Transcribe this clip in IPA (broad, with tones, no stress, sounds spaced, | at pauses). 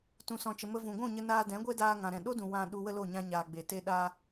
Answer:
t ũ˧ s ɔ̃˧ t͡ʃ ə˧ m ə˦ v ũ˨ ɡʷ ũ˦˨ ɲ ə˧ n aː˧ d ɛ̃˨˦ ɡʷ e˦ d aː˧ ŋ ã˨ ɾ ɛ̃˨ ɗ o˦ d ũ˨ w ã˧ ɗ u˧ w ə˦ l o˦˨ ɲ ã˧ ɲ aː˨ ɡ͡b e˨ t e˦ ɗ aː˦